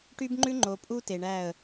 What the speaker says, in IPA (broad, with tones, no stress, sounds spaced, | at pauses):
ʈ y˦ b ŋ͡ǃ ʉ˦ ŋ͡ǃ o˨ pʼ u˦ t e˨ ɳ æ˦˨ ə̯